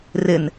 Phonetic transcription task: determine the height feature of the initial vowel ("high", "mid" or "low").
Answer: high